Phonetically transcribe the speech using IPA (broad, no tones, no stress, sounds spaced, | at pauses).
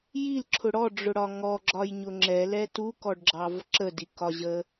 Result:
j i l ǁʰ ʊ ɽ ɔ ɖ͡ʐ ʊ ɽ ɒ ŋ ɔ ɡ͡ǁ ɒ j ɲ ʊ ŋ͡ǁ ɛ l ɛ t u k ɔ ɖ ɡ͡ǁ ɑ v ǁ ə d i k ɒ ʑ ə